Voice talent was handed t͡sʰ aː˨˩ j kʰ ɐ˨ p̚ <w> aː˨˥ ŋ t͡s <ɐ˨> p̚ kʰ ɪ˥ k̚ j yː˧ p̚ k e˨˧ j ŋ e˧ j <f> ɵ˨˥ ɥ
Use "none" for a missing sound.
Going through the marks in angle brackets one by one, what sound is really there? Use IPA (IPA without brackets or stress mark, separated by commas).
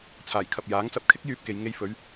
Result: j, ɐ˨, f